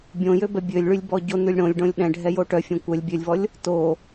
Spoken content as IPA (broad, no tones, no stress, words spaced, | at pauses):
bʲõjøbɛ bʲølʲɭylʲbɔ ɟonʉlʲ ɽõlʲɖõlʲ ɗɛ̃ɖʱɛjo ʈœfʲõ kʷœlʲ bʲølʲvɔlʲ | to